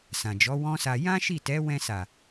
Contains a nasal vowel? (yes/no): yes